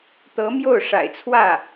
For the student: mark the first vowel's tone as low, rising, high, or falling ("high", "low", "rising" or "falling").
rising